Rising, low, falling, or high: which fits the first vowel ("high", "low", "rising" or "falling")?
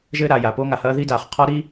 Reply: high